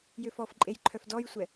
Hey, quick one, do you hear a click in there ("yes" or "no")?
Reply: yes